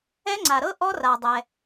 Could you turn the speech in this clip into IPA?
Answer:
ɛ˦˥ ŋ͡ǀ a˩ ɾ ɤ˦˥ ʔ ɔ˦˥ r a˩ dˤ ɛ˩

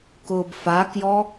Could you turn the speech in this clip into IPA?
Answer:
k ʊː b f a k j ɔ

